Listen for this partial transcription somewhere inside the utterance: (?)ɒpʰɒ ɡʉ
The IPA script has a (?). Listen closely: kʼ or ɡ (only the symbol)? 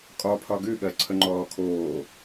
kʼ